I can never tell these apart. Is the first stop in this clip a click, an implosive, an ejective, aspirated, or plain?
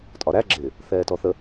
ejective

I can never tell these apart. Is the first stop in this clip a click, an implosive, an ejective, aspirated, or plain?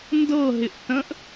plain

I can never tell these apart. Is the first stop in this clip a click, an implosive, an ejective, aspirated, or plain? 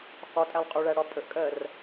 ejective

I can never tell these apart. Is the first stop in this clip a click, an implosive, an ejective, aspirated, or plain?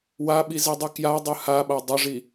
implosive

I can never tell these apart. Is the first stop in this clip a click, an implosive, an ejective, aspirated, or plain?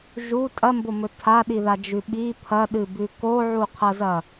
ejective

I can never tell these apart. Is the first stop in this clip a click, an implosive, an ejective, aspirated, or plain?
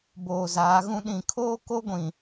plain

